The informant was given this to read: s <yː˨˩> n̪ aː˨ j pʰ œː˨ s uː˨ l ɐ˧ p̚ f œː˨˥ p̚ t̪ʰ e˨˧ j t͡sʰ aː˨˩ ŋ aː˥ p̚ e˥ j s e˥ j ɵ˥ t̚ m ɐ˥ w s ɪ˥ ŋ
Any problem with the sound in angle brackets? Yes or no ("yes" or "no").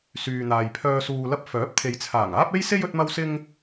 yes